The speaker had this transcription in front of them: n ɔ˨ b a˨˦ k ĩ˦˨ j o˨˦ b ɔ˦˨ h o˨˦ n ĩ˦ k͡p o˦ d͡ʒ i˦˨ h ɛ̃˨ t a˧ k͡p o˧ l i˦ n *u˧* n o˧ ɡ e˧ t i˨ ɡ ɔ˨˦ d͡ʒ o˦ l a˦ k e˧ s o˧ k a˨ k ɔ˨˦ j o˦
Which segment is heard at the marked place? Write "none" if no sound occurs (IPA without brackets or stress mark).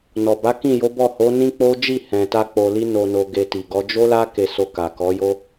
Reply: o˧